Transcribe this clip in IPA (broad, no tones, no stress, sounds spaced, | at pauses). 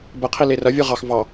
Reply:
b ə qʰ i l e r ɐ vʲ ɯ ʁ ɑ x v ɑ